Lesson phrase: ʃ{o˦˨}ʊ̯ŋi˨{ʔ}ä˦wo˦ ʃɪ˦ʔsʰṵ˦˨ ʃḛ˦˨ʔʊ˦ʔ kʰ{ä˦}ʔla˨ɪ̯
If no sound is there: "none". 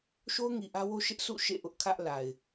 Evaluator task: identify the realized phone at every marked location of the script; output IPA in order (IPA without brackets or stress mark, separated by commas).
o˦, ʔ, ä˦